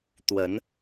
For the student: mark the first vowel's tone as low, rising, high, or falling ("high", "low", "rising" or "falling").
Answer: rising